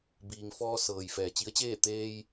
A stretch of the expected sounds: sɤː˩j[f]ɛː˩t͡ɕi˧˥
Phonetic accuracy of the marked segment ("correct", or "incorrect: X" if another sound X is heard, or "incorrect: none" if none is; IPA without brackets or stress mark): correct